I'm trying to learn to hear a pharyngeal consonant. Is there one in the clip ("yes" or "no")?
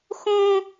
no